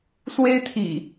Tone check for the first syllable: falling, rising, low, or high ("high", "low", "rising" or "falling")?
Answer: high